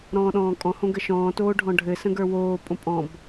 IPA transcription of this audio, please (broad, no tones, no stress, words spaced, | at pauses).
ɾɔ̃ːɗɔ̃ːkʼɔ̃hõ ɡəʃɔ̃ːtoː ɖʱɔ̃ɖʱɘsə̃ ɡə˞woːpʼõ pʼɔ̃b